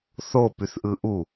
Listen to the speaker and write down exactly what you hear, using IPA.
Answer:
θopyθʔɯ ʔu

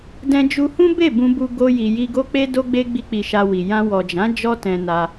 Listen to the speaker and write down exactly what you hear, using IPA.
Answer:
dɛ̃˧d͡ʒu˧hũ˦ be˦˨ bũ˧bu˧ ɡo˧ ji˨ji˧ɡo˦k͡pe˦ do˦ɡ͡be˦ ɡ͡bi˦k͡pi˧ʃa˧wi˨ jã˧wɔ˨d͡ʒã˨˦ d͡ʒɔ˦tɛ̃˧ na˧

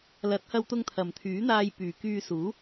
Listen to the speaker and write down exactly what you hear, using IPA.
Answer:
lɐ˨˥t̚hɐ˧wt̪ʊ˧ŋt̪ʰɐ˨˩m t̪ʰyː˨˥n̪aː˧j pyː˨˩kyː˧suː˨˥

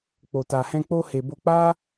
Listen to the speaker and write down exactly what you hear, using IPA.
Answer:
k͡po˨ta˨hɛ̃˧k͡po˧ he˨bo˧k͡pa˦

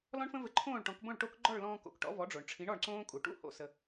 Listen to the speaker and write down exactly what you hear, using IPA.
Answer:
lɔ̃˥ɳfə̃˥vɘ˧ ǃʰõː˥˩ɭʈɔ̃˩˥kbõ˥˩ɭ ʈo˥k ɡ͡ǃɔ˥˩ɭlɔ̃ː˧ko̰˩k ʈɔ̰˩˥vɔ˩˥ɖ͡ʐo˩ɳʈ͡ʂʰĩ˩˥ɳ ɔ˥˩ɳǀõː˥ kʼu˩ʈṵ˥˩ ho̰˧sə˧

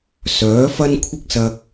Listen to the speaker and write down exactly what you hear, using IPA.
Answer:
sœː˨˥ fɐ˥nkʷʰɪ˥k̚ sɐ˧k̚

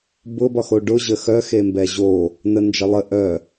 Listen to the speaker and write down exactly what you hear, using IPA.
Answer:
bʊ bɒxoɖʊ ʑəxœ xembɛʑo | nənd͡ʒʌlˠə ʔœ

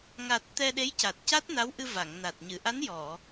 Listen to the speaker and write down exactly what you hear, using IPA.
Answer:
ŋa˨˩t̚ t̪ɛ˧ɗe˧˥jca˨˩t̚ca˦˥t̚ na˧˥wʔɨ˧va˨˩˨ŋna˨˩t̚ ɲɨ˨˩˨ʔa˧˥n jɔ˨˩˨

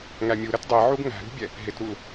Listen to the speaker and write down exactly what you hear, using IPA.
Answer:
ŋæmʲu ɾətdˤi ʕuɡŋæ̤ɾṳbʲɛ | ɦɪtɾul

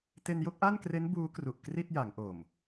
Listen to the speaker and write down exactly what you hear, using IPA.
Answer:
te˧njo˥˩k̚ʔa˥˩nkre˦˥n buː˦˥kru˨˩ʔ kri˥˩t̚ja˩˦ŋʔo˨˩m

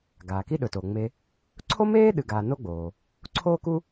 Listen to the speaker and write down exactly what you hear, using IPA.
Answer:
ɡaː˩ki˦ɗɵ˩toː˩ ŋ͡me˨ | ǀʰo˥meː˥ ɗɨ˨ɡaː˨no˦ɡ͡boː˩ | ǀʰoː˦ku˦

